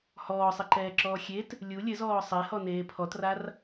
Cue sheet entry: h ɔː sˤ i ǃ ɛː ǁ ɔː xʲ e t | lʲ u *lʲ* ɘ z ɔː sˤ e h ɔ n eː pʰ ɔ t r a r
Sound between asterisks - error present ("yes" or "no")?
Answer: no